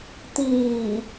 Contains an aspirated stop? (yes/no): no